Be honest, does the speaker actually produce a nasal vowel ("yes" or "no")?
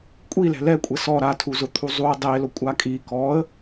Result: no